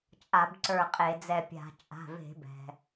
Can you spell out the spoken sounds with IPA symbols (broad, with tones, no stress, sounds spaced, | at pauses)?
t͡ʃʼ a˧˩˧ b ǀ ə˞˧˩ qʼ e˧˩˧ d͡z ɛ˧˩ pʲ a̤˧˩˧ t͡ʃʼ a̤˩˧˩ v e̤˧˩˧ b ɛ̤˩